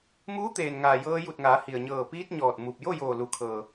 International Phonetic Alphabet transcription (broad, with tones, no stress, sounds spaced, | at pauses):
m uː˧˥ t̪ eː˩ n ŋ aː˩ j ɤː˧ j u˧˩ t̚ ŋ aː˩˧ h i˩ ə̯ ɲ ɤː˧˩ p iː˧ t̚ ɲ ɔː˧˩ t̚ m u˧˩ p̚ j o˥˨ j oː˧˩ l u˩˧ kʰ ɤː˩